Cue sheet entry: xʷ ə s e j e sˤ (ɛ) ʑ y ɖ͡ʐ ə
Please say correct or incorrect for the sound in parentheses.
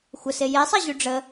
correct